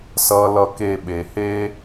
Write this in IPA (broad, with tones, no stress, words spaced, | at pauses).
sʌ˦lʌ˦ke˦˨ɓe˨ he˦